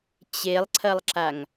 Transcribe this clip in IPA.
t͡ɕ e lˠ ǀʰ ɐ lˠ ǁ a ŋ

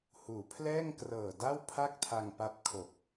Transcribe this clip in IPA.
h uː˩˦ pʰ l ɛː˥˩ ŋ k r ɤː˨˩ d a˥˩ w pʰ a˥˩ k̚ tʰ a˧ ŋ p a˦˥ p̚ kʰ o˨˩ k̚

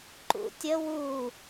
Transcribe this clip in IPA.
ǃ ṵ tʲ ə w u

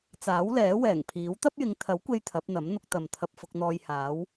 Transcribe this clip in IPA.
t͡s aː˨˥ w l ɛː˨˥ w ɛː˨˩ ŋ pʰ iː˨˥ w t̪ ɐ˥ p̚ j ɪ˨˧ ŋ t̪ʰ ɐ˨˥ w kʷ e˧ j t̪ʰ ɐ˨˥ p̚ n̪ ɐ˨˥ m n̪ ʊ˧ k̚ t̪ ɐ˨ m t̪ʰ ɐ˧ p̚ f ʊ˧ k̚ n̪ ɔː˧ j h aː˨˧ w

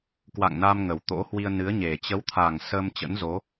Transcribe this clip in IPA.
k w a̰˧˨ ŋ n a˧ m ŋ ə˨˩ w t̪ o̰˧˥ h w i˧ ə̯ n ɨ˨˦ ə̯ ɲ e˨˩ t͡ɕ ə˨˦ w t̪ʰ a˨˩ ŋ s əː˧ m t͡ɕ ə̰˧˥ n z o˨˦

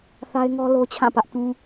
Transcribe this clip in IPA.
θ a˦ ɪ̯ ŋ ɔ˦ l o˦ t͡ɕʰ ã˦˨ p ä˦ ʔ t ũ˦

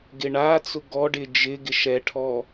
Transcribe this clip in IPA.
ɡ ɪ ɳ a t͡s ʊ ɡ ɔ ɖ ɪ d͡ʒ ɪ ɡ ɪ ʃ ɛ ʈʰ ɔ

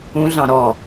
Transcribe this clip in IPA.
ũ ɮ ɑ̃ ɾ ɔ

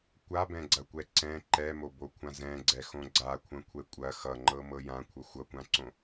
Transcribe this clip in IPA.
kʷ a b ɛ̃ ɡ͡ǀ ɐ kʷ ɛ ǀ ɛ̃ ǃ ɛ m o b o kʷʰ ã z ɛ̃ ɡ͡ǀ ɛ x õ ɡ͡ǀ a kʷʰ ɐ̃ kʷʰ ɛ kʷʼ ɐ x ʌ ŋ͡ǃ ɤ m ɤ j ã kʷʰ ʌ xʷ ʌ kʷ ã ǀ õ

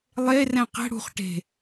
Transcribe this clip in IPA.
lˠ e r ɛ̃ q ɛ̤ ɽ ṳ χ ʈ e̤

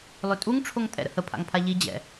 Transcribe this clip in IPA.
lˠ ø tʼ u ŋ ʈ͡ʂʰ o ŋ tʼ ɛ̰ ɾ ə̰ h ə pʰ a̰ ŋ pʰ a ʎ i d͡ʑ ɛ̰

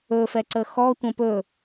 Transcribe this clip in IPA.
ɵ f ɛ ǀ ə x ɔ tʷ ə̃ p ɵ

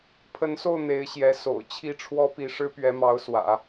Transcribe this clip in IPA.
pʰ ə˧˥ n s o˥˩ ʊ̯ n̪ e˧˥ ɪ̯ ɕ j ɛ˧˥ s o̰˨˩ ʊ̯ t͡ɕʰ i˥˩ ʈ͡ʂʰ w ɔ˥ p i˧˥ ʂ ɻ̩˥ p ɥ ɛ˧˥ m ɑ˧˥ ʊ̯ s w ä̰˨˩˦

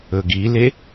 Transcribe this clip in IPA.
ɵ ɡ i l e

